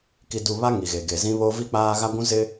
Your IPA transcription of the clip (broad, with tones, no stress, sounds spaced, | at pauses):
k i˨ d u˨ β a˦ ŋ i˨ ɣ e˨ ɡ e˨ z ĩ˦ β o˦ v i˦ k͡p aː˦ ɣ a˦ ɡʷ ũ˦ z ɪ˦